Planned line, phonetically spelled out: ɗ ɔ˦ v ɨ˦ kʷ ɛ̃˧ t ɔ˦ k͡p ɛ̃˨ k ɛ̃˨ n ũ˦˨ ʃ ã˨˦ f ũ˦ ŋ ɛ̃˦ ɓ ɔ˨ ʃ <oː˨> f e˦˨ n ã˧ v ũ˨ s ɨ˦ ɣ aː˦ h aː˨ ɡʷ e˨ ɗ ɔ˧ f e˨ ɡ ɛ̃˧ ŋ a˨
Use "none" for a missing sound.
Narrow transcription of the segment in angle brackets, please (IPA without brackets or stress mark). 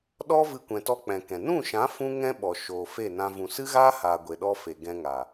oː˨